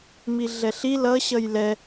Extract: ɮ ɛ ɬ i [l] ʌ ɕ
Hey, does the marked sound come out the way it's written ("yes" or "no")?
yes